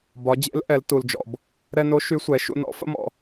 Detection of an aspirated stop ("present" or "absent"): absent